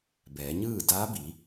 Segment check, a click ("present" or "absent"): absent